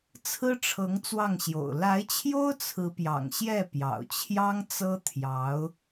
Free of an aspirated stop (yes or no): no